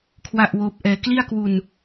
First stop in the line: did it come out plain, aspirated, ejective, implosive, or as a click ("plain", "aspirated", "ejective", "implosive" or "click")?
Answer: aspirated